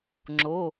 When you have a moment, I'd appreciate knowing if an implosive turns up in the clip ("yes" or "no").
no